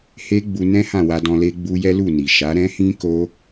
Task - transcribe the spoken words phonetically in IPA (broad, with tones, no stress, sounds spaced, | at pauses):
h e˦ ɡ͡b u˧ n ɛ̃˦ h ã˦˨ w a˧ d ɔ̃˧ l e˦ ɡ͡b u˦ j ɛ˦ l u˦˨ n i˨ ʃ a˨˦ ɾ ɛ̃˦ h ĩ˦ k o˦